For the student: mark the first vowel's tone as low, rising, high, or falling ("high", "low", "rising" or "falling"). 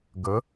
rising